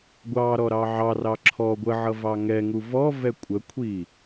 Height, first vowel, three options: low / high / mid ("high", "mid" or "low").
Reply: low